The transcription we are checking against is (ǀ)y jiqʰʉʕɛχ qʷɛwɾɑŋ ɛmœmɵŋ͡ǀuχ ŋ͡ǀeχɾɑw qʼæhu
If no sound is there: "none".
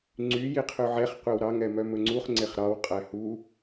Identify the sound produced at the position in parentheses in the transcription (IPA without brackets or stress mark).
ŋ͡ǀ